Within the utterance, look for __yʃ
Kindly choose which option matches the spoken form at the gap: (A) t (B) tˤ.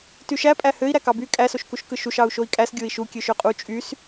A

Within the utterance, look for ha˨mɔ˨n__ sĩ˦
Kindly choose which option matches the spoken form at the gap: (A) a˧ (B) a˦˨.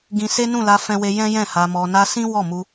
A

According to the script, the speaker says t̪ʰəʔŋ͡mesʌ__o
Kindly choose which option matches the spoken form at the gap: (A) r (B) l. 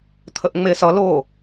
B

